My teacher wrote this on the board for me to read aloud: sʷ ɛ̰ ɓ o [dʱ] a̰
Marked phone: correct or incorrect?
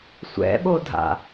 correct